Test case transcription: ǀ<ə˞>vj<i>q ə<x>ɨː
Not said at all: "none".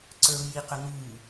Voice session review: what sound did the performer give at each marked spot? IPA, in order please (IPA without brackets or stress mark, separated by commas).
ə˞, i, ŋ